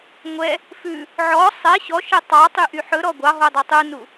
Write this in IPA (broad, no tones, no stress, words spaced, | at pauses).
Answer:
ŋʷɛ | fʉ | ʕɔ sˤɛ ɕɔʃɛ tˤɑtˤyʔy ħɵɾɔ ɡʷɑɦodˤɵ tˤunu